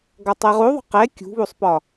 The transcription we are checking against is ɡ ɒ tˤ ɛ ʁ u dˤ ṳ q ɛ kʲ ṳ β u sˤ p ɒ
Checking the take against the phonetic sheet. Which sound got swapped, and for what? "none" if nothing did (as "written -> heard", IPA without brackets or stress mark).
dˤ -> ðˤ